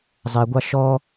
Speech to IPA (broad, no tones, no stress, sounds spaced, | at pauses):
zˤ ɛ ɡʷ ɑ ʃ ɔ